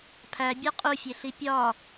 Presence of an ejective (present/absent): present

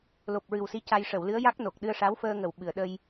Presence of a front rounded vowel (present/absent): absent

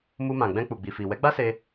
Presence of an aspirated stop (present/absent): absent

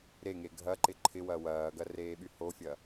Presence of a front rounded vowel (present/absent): present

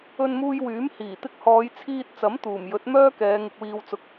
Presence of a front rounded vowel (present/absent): present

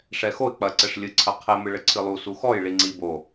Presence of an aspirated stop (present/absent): present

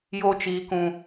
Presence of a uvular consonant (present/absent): absent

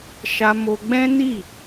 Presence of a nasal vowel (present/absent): present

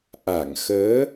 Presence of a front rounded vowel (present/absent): absent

